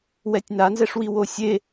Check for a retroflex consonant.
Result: present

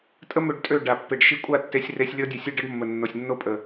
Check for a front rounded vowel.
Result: present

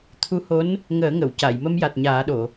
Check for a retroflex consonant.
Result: absent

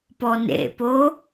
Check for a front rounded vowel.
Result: absent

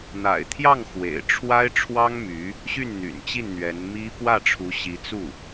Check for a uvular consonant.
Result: absent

